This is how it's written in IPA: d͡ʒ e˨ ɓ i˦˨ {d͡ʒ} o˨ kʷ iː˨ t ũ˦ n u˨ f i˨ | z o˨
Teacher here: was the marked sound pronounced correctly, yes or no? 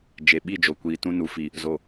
yes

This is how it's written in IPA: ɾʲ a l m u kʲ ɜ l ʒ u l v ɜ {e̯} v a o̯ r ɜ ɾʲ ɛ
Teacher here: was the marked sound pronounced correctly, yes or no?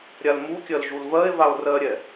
yes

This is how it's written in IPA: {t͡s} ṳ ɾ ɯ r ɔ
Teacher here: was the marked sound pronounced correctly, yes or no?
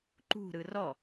no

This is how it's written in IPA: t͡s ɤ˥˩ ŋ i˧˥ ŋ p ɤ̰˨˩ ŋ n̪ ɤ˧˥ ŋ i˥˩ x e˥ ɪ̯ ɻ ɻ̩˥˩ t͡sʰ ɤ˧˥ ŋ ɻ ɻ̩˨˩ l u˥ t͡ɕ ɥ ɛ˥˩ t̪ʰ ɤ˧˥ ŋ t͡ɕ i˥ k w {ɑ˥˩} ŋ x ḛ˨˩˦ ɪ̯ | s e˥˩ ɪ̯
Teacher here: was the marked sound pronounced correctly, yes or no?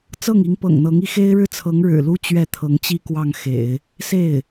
yes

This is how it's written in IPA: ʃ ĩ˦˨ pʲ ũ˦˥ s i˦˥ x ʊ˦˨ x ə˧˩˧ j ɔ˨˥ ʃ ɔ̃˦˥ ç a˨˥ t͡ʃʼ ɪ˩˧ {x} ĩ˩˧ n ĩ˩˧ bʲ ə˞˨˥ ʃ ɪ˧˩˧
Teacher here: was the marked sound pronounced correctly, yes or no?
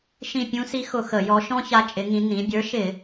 no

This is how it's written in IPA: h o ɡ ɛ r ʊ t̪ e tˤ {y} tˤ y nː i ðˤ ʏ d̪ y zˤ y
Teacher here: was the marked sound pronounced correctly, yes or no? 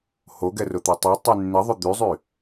yes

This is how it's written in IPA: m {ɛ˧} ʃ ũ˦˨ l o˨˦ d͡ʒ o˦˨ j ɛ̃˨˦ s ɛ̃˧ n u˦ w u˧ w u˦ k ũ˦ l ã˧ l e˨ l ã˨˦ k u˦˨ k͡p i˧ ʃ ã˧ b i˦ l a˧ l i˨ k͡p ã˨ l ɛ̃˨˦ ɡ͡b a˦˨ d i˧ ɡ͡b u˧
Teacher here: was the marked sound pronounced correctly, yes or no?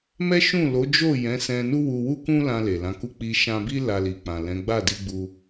no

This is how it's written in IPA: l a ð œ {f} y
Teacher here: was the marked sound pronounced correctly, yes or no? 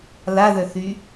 no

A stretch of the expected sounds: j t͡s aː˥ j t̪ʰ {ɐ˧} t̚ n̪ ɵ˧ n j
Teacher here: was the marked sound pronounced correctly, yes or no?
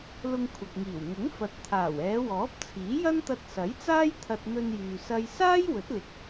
yes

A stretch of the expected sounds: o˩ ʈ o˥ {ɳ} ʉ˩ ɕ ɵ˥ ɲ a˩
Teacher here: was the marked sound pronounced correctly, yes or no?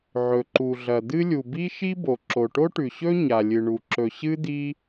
no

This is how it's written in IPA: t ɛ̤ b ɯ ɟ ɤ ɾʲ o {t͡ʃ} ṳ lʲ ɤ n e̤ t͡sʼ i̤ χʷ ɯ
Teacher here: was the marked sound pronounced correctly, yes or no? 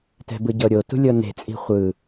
no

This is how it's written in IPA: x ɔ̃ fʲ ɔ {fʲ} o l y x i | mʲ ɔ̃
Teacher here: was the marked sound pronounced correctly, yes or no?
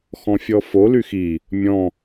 no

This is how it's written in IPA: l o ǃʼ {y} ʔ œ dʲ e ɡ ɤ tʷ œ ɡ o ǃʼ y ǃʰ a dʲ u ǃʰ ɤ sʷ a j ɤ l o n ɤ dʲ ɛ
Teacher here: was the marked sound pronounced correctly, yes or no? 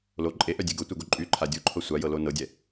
no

